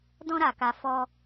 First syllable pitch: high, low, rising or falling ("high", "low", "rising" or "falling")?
high